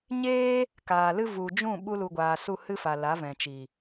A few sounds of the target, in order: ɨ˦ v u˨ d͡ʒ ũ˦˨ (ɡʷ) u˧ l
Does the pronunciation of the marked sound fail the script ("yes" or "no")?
yes